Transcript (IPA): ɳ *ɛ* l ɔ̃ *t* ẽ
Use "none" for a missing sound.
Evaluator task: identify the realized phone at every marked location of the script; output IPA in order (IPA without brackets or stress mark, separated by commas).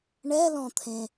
ɛ, t̪ʰ